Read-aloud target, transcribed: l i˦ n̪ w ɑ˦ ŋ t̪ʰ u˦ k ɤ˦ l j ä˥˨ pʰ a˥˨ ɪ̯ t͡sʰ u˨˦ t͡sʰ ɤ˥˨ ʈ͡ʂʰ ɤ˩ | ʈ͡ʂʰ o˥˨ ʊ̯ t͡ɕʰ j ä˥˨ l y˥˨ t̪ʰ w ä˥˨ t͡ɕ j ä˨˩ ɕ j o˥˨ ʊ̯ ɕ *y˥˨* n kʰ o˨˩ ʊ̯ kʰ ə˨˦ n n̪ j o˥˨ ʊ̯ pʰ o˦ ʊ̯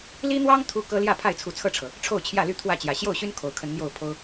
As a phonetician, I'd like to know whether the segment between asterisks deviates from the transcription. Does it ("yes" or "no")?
yes